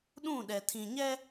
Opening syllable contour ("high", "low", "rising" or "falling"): falling